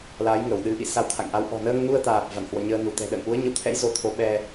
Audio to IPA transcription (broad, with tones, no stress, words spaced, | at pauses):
laː˨˦jŋə˧˩wɗɨ˨˦ʔḭ˧˨ sa˧wt̪ʰa̰˧˨ŋʔa˨˦w ʔɔ̤˨˩nəː˧ŋnu˧ə̯t̪aː˨˩p̚ va̰˧˨nhwɔ̰˧˨ɲəː˧ nu˧˩t̪ɛ̤˨˩ɗə̰ː˧˨n ʔu˨˦ə̯ɲə̰˧˨wt̪ʰɛ̰˧˥j zo˨˦t̪ʰo˨˦ɓɛ˧